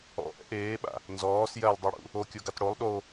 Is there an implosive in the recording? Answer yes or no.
yes